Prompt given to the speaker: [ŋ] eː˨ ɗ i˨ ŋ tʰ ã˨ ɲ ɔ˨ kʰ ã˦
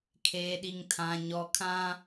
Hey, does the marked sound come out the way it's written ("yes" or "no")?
no